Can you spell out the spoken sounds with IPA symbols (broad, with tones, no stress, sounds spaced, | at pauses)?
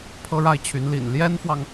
pʰ ɤ˥ ɻ a˥˩ ɪ̯ t͡ɕʰ y˧˥ n l ḭ˨˩ n l j ɛ˥ n f w ɑ˨ ŋ